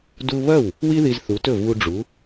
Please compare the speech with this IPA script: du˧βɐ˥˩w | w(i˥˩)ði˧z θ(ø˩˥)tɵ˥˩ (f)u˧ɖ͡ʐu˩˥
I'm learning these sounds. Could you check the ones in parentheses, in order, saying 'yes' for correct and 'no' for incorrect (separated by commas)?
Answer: no, no, no